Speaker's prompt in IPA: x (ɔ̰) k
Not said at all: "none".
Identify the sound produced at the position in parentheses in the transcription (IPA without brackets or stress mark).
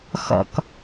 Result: ɔ̰